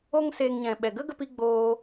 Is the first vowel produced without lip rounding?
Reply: no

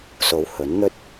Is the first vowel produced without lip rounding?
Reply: no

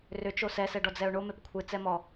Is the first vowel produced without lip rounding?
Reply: no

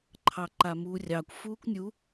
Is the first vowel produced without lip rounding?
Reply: yes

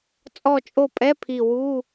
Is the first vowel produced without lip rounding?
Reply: no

